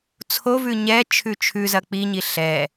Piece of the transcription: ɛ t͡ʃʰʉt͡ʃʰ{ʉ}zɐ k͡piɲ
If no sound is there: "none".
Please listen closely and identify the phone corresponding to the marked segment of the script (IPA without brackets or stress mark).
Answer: ʉ